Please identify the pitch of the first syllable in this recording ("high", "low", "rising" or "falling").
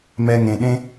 high